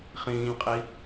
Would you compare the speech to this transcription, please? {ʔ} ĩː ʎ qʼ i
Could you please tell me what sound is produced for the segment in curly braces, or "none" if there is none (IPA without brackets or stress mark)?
χ